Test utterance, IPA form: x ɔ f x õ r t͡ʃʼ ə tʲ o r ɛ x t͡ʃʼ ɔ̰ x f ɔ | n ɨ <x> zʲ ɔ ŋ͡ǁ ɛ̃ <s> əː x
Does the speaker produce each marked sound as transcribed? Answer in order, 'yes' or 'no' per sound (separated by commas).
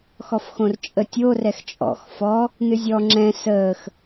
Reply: no, yes